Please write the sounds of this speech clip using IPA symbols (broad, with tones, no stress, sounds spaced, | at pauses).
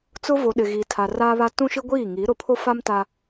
t͡s ʊ˦ v o˨ ɗ ɪ˨ ɣ iː˨ tʰ a˨ r aː˦ β a˦ t ũ˦ ʃ i˦ ɡʷ iː˦˨ ŋ i˨˦ ɾ ʊ˨ pʰ o˦ f a˦ m t a˦